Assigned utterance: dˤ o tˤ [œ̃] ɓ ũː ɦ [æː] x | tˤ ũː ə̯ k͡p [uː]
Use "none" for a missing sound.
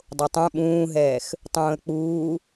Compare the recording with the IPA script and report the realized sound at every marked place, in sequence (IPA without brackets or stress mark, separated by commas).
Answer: œ̃, ɛː, uː